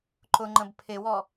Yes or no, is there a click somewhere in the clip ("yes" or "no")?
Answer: yes